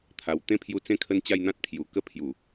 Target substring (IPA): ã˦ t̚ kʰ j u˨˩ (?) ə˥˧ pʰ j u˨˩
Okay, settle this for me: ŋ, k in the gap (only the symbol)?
k